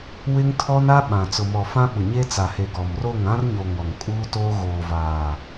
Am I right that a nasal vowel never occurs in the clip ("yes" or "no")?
no